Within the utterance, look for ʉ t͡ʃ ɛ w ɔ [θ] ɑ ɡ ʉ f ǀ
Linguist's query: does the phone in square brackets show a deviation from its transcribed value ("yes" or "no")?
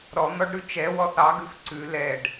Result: no